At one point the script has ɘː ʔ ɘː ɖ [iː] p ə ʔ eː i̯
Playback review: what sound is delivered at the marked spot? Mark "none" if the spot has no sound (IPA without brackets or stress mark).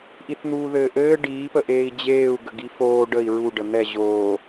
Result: iː